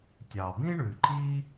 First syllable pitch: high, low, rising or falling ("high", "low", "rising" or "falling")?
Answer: low